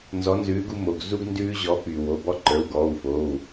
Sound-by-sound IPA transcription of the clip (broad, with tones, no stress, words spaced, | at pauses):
nzɔ˨˥nzʉː˨˥ɡu˦mo˩˧˩ɡ zu˦ɡ ndʉː˦ʑɔ˨˥py˩ wo˩˧˩bɔ˦ǃə˞˩˧˩w ɡɔː˩˧˩wfoː˩˧˩w